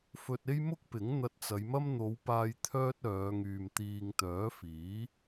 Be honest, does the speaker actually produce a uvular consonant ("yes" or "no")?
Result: no